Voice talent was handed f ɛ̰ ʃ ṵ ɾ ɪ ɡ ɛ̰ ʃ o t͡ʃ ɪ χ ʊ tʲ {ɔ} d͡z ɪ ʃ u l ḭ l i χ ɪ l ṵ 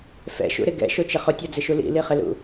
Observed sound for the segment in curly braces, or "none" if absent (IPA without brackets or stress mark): ɔ